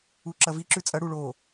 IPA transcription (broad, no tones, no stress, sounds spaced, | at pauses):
u ǁ ɐ v i ǁ ʉ t͡sʼ ɐ ɽ u ɭ o